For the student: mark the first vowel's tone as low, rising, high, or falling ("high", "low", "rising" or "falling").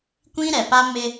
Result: high